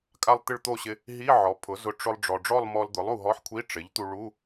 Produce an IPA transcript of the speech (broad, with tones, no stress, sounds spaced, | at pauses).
kʼ a˥˧ lˠ t̪ ɪ˥˧ ɭ t̪ o˥˧ ɕ ɪ˧ | ɦ i˧˥˧ ʕ ɔ˩˥ pʰ ʊ˩˥ z ʊ˧ ʈ͡ʂ ʊ˧ lˠ ɖ͡ʐ ɔ˩ ɖ͡ʐ ɔ˥˧ lˠ m ɔ˧ l d̪ ʊ˩˥ lˠ u˧˩ ɦ ɔ˧˥˧ ħ kʷʰ i˧˥˧ ʈ͡ʂ ɪ˩˥ ʎ t̪ u˧ ɭ u˧˥˧